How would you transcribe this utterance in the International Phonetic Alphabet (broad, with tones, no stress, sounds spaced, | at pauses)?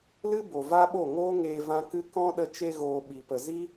l ɨ˦ b o˨ v a˦ ɓ o˦˨ ŋ oː˦ ŋ eː˧ v ã˦ k ɨ˦ k ɔ̃˦ ɗ ə˧ t͡ʃ e˧ ɣ oː˨ ɓ i˨ p ə˨ z i˦